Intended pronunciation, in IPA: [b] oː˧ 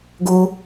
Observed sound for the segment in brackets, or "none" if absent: ɡ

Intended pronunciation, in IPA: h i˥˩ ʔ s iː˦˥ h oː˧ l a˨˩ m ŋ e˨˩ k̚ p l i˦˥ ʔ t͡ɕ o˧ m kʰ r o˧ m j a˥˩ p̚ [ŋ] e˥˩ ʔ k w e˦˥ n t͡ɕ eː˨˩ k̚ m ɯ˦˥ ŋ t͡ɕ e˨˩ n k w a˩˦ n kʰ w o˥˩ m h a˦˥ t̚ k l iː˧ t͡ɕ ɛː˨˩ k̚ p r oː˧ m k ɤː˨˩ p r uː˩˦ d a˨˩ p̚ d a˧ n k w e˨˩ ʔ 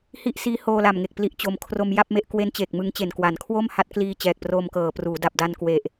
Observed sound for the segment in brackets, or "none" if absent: m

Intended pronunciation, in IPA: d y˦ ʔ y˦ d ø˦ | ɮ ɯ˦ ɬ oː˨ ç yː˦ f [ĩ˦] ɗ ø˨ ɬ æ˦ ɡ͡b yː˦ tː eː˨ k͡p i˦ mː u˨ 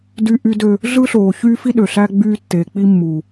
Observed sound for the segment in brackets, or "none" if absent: i˦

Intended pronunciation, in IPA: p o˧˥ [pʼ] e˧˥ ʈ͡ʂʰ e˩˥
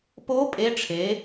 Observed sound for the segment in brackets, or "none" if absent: pʼ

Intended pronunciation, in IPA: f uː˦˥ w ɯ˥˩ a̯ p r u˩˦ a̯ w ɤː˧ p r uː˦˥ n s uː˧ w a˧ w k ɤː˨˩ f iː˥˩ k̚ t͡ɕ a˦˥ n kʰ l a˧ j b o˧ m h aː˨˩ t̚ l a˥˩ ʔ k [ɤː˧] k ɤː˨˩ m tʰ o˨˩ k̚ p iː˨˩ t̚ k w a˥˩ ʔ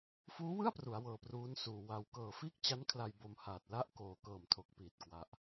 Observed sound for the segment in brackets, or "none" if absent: oː˧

